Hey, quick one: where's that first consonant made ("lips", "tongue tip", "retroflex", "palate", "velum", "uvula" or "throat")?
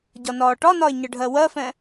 palate